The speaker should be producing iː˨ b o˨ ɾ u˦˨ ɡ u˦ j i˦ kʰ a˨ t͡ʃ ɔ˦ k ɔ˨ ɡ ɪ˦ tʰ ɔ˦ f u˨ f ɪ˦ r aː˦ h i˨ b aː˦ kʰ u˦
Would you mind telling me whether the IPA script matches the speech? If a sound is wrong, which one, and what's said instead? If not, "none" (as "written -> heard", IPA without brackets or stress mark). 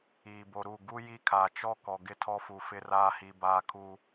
none